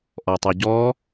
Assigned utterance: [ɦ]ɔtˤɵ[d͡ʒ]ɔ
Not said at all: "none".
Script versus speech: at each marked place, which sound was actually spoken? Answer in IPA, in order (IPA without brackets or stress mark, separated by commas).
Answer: ʔ, ɟ